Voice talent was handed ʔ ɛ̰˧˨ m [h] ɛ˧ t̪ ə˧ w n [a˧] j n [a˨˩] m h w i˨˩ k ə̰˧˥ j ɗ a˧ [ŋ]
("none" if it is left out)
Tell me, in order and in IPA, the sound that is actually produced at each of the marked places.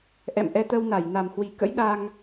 ʔ, a˧˩, a˨˩, ŋ

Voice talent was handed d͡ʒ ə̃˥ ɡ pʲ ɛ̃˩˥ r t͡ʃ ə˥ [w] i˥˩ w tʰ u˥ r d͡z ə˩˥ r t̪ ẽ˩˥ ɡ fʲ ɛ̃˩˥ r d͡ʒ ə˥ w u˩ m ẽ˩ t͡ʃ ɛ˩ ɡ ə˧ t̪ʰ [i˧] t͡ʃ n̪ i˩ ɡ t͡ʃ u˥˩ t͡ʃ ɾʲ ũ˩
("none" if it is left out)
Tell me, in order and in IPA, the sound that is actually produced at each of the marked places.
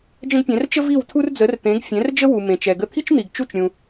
v, i˥

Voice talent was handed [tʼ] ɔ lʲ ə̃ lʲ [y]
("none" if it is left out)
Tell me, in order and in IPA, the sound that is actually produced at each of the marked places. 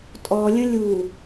tʼ, u

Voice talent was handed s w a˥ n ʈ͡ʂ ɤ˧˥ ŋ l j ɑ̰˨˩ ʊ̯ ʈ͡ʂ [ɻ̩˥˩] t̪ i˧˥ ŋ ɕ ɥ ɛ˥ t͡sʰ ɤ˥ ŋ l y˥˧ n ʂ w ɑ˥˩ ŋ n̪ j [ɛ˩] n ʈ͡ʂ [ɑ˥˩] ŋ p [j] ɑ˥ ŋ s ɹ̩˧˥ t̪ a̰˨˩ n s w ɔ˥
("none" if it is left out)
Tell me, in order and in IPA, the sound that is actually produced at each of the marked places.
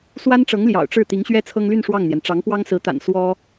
ɻ̩˥˩, ɛ˩, ɑ˧˥, w

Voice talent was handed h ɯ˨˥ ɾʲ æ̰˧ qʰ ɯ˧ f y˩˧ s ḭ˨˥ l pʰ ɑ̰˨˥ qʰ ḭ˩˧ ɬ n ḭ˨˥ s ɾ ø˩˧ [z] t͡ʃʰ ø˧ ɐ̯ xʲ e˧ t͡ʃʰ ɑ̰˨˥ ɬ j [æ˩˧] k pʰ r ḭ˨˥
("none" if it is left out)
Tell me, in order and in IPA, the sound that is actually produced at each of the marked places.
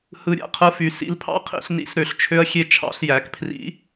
ɬ, æ˩˧

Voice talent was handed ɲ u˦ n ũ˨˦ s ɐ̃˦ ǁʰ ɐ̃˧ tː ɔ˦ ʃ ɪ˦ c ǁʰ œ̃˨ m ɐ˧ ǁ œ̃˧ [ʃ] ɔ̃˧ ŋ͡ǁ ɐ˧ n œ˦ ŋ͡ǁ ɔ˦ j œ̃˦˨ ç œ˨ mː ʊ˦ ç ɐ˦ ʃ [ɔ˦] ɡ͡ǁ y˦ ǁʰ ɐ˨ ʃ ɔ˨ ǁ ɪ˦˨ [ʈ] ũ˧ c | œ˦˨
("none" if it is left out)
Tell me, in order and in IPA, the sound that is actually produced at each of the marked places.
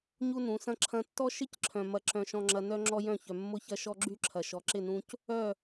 ʃ, ɔ˦, n

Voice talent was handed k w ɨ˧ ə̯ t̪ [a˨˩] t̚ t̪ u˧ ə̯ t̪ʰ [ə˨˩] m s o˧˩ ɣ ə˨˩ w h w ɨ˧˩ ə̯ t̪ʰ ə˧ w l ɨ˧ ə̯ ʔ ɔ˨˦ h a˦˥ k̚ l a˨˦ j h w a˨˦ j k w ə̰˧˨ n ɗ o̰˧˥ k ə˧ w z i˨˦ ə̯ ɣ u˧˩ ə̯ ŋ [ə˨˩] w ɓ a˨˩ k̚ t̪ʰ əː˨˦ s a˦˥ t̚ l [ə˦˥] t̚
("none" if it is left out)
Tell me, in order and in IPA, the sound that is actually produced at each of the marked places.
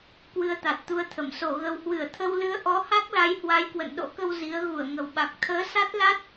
a˨˩, ə˧˩, ə˨˩, a˦˥

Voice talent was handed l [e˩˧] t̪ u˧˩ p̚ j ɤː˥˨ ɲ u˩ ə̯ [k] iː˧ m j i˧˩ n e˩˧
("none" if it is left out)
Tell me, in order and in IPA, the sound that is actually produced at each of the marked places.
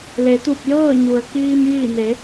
e˩˧, k

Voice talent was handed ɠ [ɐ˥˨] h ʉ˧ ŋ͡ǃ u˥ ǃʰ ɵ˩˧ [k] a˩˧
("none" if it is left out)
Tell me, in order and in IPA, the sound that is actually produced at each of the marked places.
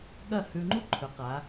ɐ˥˨, q

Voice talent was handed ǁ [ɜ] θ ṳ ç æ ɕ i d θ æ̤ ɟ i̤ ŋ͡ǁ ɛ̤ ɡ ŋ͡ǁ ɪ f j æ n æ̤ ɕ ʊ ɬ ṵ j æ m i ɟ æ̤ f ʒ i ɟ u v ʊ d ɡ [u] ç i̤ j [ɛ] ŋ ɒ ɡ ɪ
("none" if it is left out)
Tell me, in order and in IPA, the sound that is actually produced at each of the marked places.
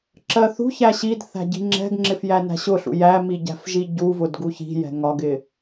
ɜ, u, ɛ̤

